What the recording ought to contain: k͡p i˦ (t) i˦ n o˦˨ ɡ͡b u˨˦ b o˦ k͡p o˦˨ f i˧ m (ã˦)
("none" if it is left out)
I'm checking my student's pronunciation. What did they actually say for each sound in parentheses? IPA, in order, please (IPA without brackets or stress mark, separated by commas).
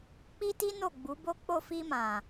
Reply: t, ã˨